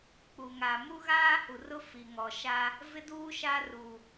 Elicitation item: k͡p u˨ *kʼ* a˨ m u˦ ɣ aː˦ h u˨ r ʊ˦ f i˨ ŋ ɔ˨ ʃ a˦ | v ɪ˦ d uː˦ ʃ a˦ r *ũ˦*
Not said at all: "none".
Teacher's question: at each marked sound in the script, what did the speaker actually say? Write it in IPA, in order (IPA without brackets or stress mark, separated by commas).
ŋ, u˦